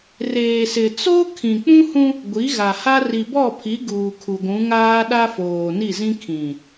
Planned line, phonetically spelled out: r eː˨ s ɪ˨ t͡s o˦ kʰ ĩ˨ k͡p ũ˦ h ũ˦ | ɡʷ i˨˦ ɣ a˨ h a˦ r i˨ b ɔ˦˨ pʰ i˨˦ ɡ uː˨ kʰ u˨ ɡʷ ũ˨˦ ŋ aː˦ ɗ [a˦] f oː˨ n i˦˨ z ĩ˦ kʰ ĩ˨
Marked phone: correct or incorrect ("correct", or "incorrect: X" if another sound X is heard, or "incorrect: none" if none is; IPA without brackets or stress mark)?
correct